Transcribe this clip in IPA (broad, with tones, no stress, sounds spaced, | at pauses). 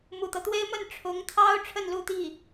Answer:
m u˨˩ t̪ ɤ˦ t̪ w e˥ ɪ̯ m ə˥˩ n ʈ͡ʂʰ ʊ˧˥ ŋ t̪ʰ ɑ˥ ʊ̯ ʈ͡ʂʰ ə˥˧ n l u˥˧ t̪ i˥˩